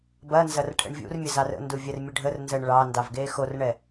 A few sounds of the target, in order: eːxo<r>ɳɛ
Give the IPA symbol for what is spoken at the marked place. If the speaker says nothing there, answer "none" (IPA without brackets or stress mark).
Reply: r